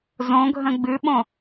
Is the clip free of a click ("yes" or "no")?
yes